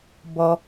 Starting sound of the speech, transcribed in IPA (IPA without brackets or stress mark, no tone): b